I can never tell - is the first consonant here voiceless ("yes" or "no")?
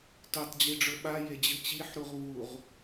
yes